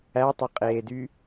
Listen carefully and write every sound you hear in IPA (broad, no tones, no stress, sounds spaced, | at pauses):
æ tˤ ɐ qʼ eː d y